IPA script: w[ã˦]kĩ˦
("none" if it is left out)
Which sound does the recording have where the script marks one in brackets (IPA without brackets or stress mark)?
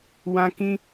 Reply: ã˦